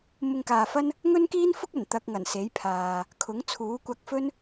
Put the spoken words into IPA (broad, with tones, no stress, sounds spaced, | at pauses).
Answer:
m ʊ˧ ŋ k aː˨ f ɐ˥ n | ŋ ɵ˥ n k iː˥ n f ʊ˥ k̚ ɐ˨˩ n t̪ ɐ˧ k̚ ŋ ɐ˨˩ n s e˨˥ j pʰ aː˨ | kʰ ʊ˨˥ ŋ t͡sʰ uː˨˥ kʷ ɐ˧ k̚ f ɵ˥ n